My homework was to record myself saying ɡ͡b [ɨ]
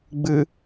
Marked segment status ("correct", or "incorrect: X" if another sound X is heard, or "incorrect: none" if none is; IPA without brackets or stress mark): correct